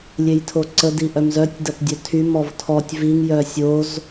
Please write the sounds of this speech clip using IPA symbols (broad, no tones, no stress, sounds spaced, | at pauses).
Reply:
lʲ e j tʰ o ǀ ə d i ʔ œ m z œ tʲ d ɐ p dʲ œ tʰ y m ɔ v tʰ ɔ tʲ v i ŋ j œ sʲ o z